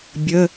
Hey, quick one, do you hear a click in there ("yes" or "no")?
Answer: no